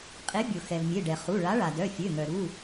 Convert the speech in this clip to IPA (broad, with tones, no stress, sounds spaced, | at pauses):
qʼ e˨˥ bʲ o˩ x ɛ˩ v mʲ e˩˧˩ ɖ ɛ˩ χ u˩˧˩ ɭ a˨˥ ɭ a˩ d œ˩˧˩ fʲ ø˩˧˩ ŋ œ˩ ɾ u˩˧˩